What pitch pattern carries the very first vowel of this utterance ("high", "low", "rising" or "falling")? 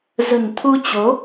low